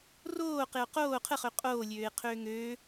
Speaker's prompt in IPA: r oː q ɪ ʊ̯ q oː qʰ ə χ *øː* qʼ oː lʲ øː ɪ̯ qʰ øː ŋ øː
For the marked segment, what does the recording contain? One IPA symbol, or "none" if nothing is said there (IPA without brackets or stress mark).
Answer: ø